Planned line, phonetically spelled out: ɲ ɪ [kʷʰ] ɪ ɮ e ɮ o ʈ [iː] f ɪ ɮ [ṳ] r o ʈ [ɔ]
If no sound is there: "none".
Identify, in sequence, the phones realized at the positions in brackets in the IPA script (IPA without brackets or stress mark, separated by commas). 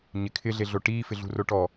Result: kʰ, iː, ṳ, ɔ